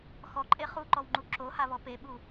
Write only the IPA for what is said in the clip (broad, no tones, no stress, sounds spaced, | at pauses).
x ɔ ǃʼ e χ u ǃ ɔ w ŋ͡ǃ u ǁ o h a β ɔ p e ɓ u